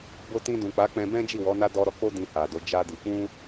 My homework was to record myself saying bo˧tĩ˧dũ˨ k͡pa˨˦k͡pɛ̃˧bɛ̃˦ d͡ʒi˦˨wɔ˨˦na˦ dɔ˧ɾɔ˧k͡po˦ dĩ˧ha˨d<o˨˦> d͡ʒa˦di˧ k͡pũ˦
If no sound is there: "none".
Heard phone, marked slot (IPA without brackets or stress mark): o˨˦